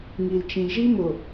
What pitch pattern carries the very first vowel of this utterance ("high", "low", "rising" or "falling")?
low